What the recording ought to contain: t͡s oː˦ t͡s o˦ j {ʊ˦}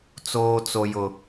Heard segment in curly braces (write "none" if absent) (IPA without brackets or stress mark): ʊ˦